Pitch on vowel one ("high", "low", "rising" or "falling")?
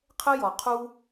high